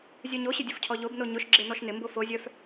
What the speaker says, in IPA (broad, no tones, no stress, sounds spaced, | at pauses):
zʲ œ ɲ o ɕ ɪ dʲ ʊ f cʰ ɔ ʎ o b n o ɲ ʊ ʃ ɡ͡ǁ e n ɔ ʃ n ɪ m b o f o zʲ œ f